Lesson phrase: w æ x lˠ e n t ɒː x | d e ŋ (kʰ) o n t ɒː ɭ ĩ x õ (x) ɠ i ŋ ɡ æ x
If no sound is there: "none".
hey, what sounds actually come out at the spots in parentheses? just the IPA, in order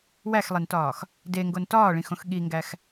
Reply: ɡ, x

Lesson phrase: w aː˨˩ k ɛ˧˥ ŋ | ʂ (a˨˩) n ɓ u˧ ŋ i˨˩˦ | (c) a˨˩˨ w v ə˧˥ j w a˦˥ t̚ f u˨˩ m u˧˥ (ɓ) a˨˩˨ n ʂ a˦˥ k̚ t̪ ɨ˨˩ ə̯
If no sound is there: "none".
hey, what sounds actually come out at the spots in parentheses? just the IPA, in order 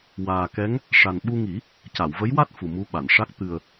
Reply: a˨˩, c, ɓ

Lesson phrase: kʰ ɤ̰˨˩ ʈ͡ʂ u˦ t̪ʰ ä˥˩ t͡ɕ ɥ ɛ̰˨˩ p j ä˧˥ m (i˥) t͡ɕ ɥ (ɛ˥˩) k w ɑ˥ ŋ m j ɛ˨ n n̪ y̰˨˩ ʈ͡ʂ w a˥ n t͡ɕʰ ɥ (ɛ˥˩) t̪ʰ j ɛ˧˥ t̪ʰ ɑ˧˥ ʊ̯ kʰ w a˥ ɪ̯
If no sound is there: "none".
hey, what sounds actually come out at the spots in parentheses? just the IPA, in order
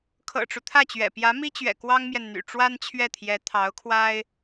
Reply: i˥, ɛ̰˨˩, ɛ˥˩

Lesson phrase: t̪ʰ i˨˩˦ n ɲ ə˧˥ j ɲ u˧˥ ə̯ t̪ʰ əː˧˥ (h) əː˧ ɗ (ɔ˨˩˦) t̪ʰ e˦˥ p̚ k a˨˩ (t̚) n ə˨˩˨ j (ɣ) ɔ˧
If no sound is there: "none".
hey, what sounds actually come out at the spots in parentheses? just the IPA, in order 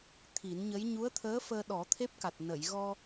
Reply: f, ɔ˨˩˦, t̚, ɣ

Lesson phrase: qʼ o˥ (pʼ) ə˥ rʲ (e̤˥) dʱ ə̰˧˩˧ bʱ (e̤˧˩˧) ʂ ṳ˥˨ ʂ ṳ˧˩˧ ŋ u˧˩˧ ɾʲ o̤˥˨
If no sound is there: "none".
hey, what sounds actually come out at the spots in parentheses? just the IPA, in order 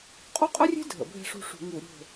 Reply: qʼ, e̤˥, e̤˥˨

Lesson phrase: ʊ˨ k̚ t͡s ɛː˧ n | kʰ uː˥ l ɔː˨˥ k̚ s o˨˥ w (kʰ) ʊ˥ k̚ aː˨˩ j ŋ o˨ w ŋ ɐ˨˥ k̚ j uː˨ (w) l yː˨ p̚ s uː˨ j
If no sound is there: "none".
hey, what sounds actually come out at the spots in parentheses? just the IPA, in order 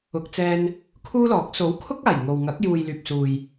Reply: kʰ, j

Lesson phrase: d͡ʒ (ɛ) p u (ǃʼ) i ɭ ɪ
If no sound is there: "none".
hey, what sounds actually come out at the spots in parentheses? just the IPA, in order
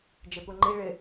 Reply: e, ŋ͡ǃ

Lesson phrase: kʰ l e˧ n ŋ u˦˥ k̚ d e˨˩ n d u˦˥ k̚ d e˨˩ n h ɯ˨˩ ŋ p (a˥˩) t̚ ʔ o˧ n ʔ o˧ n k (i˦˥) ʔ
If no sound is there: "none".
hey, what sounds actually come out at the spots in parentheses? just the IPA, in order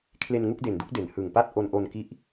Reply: a˥˩, i˦˥

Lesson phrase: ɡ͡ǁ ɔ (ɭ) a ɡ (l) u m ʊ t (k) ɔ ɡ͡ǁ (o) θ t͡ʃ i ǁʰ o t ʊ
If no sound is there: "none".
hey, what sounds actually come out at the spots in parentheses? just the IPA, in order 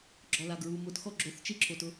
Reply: l, ɹ, x, o

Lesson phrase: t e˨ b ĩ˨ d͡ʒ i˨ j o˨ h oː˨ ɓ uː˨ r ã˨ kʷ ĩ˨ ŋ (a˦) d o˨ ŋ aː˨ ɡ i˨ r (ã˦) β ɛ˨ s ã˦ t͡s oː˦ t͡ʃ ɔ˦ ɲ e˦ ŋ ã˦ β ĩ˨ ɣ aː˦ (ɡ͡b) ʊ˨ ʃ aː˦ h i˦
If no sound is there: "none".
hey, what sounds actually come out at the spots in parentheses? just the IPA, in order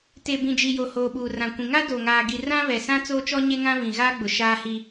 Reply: a˦, ã˦, ɡ͡b

